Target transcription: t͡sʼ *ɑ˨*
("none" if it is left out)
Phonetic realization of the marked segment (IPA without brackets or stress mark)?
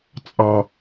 ɑ˨